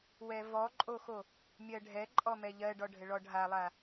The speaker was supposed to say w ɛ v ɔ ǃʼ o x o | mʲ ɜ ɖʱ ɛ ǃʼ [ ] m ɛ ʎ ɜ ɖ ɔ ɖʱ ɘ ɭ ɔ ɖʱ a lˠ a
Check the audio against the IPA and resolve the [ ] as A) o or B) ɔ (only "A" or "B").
B